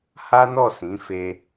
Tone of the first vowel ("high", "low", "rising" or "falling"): high